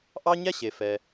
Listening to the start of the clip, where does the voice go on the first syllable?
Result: high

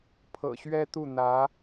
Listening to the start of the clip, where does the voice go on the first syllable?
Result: low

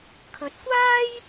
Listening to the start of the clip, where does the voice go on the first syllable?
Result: rising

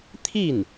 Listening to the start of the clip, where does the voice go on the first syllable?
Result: falling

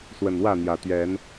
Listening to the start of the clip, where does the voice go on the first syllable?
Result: low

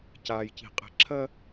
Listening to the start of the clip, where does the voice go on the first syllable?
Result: low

